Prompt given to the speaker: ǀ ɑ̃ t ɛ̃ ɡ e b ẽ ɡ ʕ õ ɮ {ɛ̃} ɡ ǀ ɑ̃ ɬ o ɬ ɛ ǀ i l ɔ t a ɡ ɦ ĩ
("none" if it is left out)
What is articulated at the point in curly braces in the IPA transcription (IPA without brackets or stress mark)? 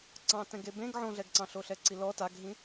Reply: ɛ